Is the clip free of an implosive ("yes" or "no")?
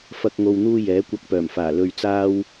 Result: yes